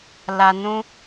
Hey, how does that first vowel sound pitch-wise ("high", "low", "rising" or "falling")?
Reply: low